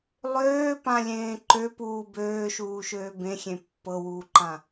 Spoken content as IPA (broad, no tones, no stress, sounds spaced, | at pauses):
lˠ øː p ã lʲ ẽː ǃ ø p uː b øː ʃ uː ʃ øː b ẽ xʲ ẽ pː ɤ w uː ǃ ã